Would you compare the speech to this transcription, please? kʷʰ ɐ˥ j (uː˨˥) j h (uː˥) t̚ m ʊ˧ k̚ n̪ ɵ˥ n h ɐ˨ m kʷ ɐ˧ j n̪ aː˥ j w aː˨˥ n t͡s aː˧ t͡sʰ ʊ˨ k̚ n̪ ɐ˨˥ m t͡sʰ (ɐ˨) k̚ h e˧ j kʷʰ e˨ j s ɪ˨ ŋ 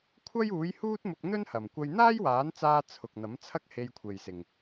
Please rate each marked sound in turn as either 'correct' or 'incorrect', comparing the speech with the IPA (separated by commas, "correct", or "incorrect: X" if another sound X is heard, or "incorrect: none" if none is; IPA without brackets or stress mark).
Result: correct, correct, incorrect: ɐ˥